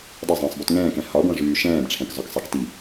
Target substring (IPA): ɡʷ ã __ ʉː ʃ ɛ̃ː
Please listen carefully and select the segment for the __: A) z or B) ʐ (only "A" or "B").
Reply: B